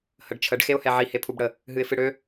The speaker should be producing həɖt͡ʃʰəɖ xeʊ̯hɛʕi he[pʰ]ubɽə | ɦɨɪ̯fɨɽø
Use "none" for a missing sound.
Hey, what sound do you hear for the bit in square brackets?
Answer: pʰ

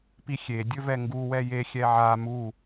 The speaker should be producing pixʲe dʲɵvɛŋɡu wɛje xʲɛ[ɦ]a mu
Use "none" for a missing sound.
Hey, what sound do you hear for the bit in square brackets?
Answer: ʕ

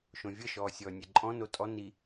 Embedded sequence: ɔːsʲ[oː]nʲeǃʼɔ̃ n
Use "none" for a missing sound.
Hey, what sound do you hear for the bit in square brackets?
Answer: ɔː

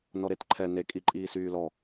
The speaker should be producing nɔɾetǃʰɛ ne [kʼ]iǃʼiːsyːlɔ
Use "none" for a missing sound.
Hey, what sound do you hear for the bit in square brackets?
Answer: kʼ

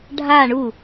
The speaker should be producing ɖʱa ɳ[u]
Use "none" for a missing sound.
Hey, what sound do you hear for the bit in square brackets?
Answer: u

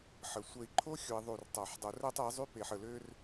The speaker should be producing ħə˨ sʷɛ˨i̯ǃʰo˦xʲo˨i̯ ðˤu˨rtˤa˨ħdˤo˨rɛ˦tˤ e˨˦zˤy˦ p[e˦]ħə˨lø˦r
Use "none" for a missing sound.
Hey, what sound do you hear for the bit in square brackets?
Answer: e˨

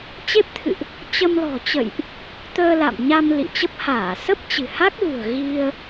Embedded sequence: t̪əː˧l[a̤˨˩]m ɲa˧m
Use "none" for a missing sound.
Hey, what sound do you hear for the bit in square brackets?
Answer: a̰˧˨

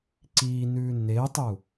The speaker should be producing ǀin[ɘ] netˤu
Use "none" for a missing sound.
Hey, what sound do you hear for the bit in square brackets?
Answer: ʉ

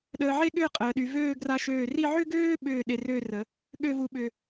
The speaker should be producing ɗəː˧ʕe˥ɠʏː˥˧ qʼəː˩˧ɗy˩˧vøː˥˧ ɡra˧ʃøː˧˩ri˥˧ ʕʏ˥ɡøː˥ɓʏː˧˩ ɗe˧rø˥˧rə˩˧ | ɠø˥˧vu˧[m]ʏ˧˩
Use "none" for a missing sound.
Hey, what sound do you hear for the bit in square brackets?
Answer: ɓ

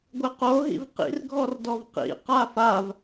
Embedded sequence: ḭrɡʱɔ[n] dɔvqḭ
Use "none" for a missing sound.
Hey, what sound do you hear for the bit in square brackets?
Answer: r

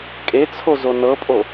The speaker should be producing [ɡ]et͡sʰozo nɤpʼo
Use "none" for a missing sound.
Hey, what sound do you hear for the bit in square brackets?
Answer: kʼ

